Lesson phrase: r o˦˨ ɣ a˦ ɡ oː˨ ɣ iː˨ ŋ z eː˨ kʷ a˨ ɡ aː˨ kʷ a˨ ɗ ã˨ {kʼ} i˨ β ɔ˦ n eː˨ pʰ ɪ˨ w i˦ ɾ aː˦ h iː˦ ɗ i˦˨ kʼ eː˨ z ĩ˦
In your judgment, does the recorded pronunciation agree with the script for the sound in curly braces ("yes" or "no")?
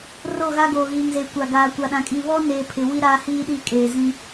yes